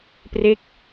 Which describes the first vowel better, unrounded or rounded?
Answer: unrounded